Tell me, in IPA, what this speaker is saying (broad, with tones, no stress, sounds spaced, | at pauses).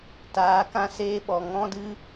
t aː˨˦ k ã˧ s eː˧ ɓ ɔ˨ ŋ ɔ̃˦ d ɨ˦